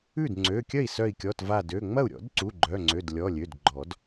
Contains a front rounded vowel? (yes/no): yes